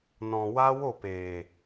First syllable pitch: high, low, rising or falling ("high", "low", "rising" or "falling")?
low